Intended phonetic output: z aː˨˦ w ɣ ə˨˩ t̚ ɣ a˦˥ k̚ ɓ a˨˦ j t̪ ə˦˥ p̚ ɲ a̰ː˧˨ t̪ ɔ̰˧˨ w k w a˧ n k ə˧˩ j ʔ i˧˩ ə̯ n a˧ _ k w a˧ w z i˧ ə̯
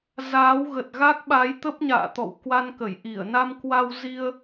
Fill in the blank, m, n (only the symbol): m